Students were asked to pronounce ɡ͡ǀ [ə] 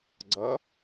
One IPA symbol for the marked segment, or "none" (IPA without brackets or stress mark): ʌ